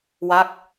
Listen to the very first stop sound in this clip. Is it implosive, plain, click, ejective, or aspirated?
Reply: plain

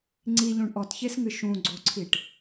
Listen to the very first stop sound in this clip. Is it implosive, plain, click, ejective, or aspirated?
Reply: click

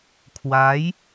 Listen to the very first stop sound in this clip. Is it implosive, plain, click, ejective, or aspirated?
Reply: aspirated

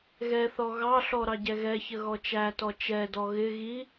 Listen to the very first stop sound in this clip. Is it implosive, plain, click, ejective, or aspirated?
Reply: plain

